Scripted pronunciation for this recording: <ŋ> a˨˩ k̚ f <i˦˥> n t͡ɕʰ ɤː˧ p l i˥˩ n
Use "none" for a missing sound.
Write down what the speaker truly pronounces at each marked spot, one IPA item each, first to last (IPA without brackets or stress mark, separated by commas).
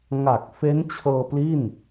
ŋ, e˦˥